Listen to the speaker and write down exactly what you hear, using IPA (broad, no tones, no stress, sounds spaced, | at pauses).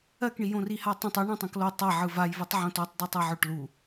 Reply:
ɜ k ɳ i j õ r i h a tˤ õ tˤ ɵ ɳ ã tˤ õ k l o tˤ a ʕ ɯ v a j v i tˤ ʕ õ t o tˤ dˤ ɵ tˤ ɯ ʕ ɵ ʈ l u